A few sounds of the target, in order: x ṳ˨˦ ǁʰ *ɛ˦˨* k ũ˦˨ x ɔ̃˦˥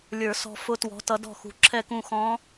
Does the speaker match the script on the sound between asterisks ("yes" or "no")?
yes